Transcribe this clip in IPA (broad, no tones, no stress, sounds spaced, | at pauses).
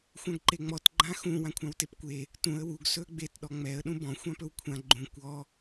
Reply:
xʷ ã ɡ ǃ e ŋ͡m ɔ t ɡ͡ǃ ã x ũ w ã kʷʰ ã w t e p kʷ e | t ũ ə̯ w u ɡ s ɵ ə̯ ɡ͡b e t ɗ ɔ ŋ͡m ɛ ə̯ ɗ ũ b ɔ̃ xʷ ã p ɵ w kʷʰ ã ɡ͡ǃ ũ kʷ ɔ